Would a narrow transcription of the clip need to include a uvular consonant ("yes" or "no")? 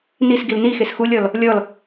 no